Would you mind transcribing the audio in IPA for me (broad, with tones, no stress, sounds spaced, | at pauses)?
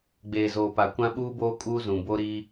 ɡ͡b eː˨ z oː˨ p a˨ kʷ ã˦ ɓ uː˦ b oː˦ kʼ uː˦ z ũ˨ b o˦ ɾ iː˦